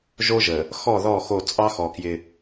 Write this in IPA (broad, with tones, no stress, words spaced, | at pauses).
ʒo˦ʒə˨ | xɔ˦˨ðɔ˦˨xo˦˨ t͡sʼɑ˦xɔ˨ kjɪ˦